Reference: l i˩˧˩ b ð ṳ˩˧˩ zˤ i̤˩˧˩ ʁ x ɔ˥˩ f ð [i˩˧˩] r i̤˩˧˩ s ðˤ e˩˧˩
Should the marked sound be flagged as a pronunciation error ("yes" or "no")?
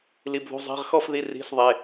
no